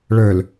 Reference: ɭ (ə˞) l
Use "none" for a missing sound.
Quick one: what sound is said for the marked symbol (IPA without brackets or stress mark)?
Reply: ə˞